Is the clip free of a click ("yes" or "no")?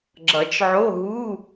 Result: no